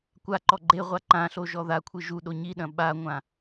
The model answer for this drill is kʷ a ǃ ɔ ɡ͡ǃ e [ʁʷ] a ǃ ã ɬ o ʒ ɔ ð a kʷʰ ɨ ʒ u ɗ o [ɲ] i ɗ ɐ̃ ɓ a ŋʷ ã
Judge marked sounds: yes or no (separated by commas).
yes, yes